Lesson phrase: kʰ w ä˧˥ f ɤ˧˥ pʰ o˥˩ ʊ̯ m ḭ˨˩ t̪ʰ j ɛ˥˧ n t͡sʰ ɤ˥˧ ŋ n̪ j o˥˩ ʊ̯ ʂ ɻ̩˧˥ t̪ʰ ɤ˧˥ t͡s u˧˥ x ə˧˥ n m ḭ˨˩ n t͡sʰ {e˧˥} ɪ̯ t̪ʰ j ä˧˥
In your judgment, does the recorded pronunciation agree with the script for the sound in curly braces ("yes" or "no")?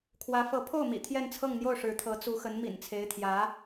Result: yes